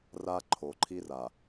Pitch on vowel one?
high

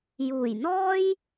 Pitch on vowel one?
low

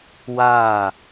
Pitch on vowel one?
falling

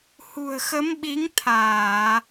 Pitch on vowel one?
low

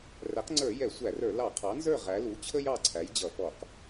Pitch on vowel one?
rising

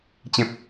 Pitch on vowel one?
high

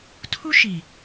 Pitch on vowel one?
high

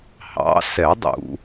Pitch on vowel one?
rising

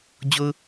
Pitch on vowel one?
high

